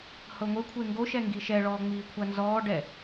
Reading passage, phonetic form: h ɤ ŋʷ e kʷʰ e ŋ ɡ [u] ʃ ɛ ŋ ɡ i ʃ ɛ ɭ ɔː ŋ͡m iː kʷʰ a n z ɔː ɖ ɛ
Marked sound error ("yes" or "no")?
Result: yes